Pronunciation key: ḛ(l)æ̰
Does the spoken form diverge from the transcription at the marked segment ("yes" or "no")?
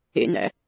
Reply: yes